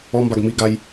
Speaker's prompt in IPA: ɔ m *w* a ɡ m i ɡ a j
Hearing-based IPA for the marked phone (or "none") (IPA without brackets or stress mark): b